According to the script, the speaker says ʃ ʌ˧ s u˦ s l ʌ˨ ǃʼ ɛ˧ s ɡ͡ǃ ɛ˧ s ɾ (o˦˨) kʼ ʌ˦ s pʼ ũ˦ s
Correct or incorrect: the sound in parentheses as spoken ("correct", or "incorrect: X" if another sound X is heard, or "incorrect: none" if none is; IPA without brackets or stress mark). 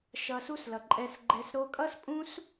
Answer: incorrect: o˧